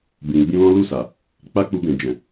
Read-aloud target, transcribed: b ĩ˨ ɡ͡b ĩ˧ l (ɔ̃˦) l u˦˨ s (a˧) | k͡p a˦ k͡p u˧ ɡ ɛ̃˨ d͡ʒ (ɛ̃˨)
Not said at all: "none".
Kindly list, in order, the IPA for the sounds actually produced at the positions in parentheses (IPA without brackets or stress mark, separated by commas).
ɔ̃˦, a˨, ɛ̃˨